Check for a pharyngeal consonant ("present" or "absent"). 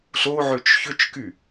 present